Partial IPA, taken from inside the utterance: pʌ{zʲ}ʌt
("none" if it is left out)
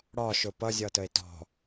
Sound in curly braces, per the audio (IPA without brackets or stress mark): zʲ